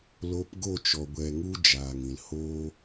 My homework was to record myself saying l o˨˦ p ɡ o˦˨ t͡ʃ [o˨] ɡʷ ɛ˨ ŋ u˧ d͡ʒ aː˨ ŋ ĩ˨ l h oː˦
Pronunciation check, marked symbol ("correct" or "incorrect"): incorrect